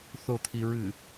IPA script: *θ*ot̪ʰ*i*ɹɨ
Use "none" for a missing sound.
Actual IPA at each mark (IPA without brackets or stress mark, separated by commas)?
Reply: θ, i